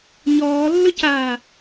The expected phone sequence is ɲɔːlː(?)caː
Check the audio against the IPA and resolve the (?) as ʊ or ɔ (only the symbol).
ʊ